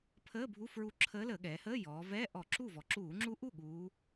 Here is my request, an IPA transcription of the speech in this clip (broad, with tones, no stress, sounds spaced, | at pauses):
pʰ əː˧˥˧ bʱ u˧˥˧ f ɹ u˧˥ ǁʰ əː˧˥ l əː˧˩˧ ɠ ɛː˩˧ h əː˧˥˧ j ɔː˩˧ v ɛː˧˥˧ ʔ ɔ˧˩˧ ǁ u˥˩ v ɔ˩˧ ǁ uː˧˩˧ ŋ͡ǁ u˧˥ ʔ u˥˩ ɠ uː˧˥